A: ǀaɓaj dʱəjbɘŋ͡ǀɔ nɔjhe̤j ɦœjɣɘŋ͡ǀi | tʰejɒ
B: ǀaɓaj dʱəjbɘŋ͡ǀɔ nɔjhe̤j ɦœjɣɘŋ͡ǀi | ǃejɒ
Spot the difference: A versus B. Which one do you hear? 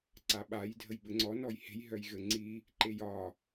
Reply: B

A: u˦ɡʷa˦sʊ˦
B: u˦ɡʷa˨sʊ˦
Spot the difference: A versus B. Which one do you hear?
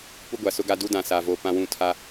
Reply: B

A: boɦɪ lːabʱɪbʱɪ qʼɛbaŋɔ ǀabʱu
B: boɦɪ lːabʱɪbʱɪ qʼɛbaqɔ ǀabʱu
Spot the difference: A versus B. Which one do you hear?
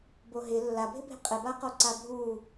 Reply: B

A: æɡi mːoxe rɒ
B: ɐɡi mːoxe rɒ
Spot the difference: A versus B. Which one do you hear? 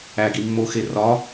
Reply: A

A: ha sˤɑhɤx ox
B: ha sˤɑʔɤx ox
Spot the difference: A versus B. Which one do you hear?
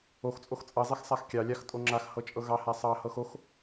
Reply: A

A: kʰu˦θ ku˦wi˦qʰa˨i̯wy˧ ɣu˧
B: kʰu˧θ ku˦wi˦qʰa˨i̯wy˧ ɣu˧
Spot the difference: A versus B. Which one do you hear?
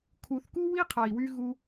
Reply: B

